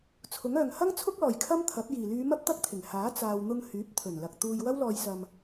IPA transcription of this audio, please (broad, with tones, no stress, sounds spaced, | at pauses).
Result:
t͡sʰ ʊ˨˥ ŋ œː˨ ŋ h ɐ˥ ŋ t͡sʰ ʊ˥ k̚ l ɔː˨˩ j kʰ ɐ˥ m t̪ʰ ɐ˨˥ p̚ j iː˨˩ l yː˨˧ m ɐ˥ p̚ t̪ ɐ˥ k̚ t̪ʰ ɪ˨˩ ŋ h aː˨˥ t͡s aː˨ w n̪ ʊ˧ ŋ h yː˨˥ p̚ t̪ʰ ɵ˨˩ n l ɐ˨ k̚ t̪ uː˧ j w ɐ˥ w l ɔː˧ j s ɐ˧ m